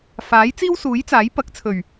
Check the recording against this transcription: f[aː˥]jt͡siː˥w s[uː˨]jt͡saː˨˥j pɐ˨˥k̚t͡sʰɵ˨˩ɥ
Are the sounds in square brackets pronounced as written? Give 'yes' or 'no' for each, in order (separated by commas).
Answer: no, no